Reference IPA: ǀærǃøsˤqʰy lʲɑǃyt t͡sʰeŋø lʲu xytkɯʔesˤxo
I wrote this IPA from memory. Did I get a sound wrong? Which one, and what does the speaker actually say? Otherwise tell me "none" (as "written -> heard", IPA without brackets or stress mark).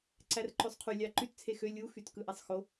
ŋ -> x